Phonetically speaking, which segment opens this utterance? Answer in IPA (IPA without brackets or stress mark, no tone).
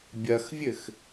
bʲ